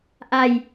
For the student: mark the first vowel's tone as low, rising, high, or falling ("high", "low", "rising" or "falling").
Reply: low